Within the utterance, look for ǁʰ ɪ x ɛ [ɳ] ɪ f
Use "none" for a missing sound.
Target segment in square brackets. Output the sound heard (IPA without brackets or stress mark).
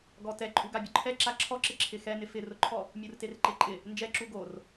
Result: n